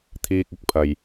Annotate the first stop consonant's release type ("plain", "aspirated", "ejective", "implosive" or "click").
aspirated